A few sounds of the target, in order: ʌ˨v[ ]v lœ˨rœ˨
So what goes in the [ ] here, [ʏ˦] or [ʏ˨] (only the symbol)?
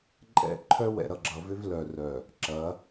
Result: ʏ˦